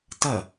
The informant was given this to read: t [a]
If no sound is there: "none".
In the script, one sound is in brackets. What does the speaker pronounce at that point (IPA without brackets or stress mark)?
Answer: ɐ